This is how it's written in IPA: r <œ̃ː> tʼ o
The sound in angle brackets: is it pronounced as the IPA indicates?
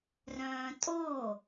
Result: yes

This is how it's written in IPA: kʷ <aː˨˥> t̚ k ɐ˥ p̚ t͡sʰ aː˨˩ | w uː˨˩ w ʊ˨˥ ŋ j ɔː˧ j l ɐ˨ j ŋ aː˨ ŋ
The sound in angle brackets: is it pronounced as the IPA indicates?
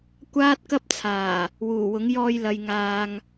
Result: no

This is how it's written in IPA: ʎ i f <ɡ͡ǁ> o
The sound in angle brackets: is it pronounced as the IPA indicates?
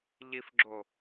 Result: yes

